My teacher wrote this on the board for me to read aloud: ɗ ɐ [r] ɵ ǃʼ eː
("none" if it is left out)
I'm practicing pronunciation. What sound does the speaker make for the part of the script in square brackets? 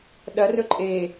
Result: r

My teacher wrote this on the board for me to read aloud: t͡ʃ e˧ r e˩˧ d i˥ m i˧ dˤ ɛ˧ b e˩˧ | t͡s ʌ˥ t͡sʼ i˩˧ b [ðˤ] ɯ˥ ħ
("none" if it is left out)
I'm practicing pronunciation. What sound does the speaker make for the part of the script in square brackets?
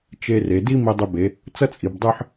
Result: dˤ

